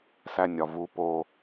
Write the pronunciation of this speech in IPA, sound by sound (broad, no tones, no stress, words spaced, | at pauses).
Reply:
sænʲɒvu po